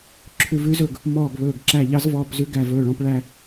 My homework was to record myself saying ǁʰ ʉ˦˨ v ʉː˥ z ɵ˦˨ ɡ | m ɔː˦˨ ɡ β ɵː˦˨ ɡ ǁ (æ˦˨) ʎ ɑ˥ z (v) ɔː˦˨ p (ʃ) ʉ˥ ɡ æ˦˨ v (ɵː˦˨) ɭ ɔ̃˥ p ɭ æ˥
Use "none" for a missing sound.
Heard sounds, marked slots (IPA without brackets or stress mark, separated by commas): æ˦˨, v, z, ɵː˦˨